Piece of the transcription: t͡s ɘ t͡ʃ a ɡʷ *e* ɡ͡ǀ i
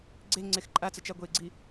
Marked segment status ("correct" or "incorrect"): correct